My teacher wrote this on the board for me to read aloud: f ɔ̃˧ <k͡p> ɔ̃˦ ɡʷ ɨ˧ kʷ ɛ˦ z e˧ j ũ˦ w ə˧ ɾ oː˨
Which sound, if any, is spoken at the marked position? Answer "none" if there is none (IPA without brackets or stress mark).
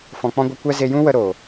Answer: k͡p